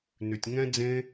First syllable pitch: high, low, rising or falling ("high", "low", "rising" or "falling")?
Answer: low